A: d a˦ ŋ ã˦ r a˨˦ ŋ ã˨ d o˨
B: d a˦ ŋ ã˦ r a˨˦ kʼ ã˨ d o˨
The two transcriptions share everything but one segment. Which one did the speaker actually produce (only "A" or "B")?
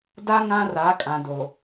B